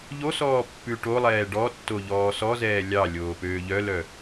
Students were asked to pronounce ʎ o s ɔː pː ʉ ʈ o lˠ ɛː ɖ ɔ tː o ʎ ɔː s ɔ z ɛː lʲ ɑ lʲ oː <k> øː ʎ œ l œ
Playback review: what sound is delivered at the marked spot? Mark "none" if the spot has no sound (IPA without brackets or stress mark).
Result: p